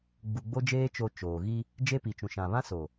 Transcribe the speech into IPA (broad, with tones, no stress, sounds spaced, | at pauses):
ɡ͡b u˨ ɡ͡b o˦ d͡ʒ eː˦ t͡ʃ o˨ t͡ʃ oː˨ ɣ i˦ | d͡ʒ e˦ p i˨ t͡ʃ ũ˨ ʃ ã˨ β ã˦ s o˨